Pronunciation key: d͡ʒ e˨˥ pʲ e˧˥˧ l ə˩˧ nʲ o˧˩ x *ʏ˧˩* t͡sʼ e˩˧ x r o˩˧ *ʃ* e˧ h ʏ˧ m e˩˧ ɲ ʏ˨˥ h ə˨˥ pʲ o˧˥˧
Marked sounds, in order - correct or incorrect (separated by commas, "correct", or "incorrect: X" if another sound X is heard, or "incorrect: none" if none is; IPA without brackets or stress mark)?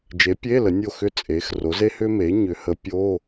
correct, incorrect: z